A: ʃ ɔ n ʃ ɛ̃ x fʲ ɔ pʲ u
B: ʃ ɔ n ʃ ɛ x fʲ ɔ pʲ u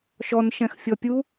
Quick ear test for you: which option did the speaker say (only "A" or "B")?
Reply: A